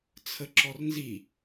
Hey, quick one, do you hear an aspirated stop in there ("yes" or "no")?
yes